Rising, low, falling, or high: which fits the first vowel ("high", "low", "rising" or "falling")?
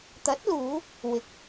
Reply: rising